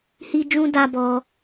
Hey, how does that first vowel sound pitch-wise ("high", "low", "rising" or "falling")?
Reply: high